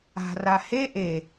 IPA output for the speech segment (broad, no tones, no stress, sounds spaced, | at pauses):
a̤ r a h e ʔ e